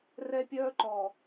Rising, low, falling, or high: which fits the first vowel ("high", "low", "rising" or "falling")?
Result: high